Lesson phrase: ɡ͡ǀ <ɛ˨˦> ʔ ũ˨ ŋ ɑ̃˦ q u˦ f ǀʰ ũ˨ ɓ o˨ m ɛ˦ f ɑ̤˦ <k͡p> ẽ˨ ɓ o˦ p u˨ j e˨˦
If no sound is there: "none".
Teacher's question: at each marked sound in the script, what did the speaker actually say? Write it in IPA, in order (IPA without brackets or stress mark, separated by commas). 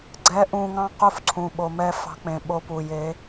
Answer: ɛ˨˦, k͡p